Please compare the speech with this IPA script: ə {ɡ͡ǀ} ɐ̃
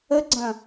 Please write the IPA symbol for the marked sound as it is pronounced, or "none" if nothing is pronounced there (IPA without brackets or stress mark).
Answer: ɡ͡ǀ